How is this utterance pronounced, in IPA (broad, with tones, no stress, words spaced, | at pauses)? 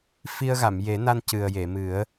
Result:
fi˧ə̯ɣa˨˩˨m je˨˩˦na˧n cɨ˨˩ə̯je˨˩˨mɨ˨˩˦ə̯